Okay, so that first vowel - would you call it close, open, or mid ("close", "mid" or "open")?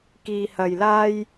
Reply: close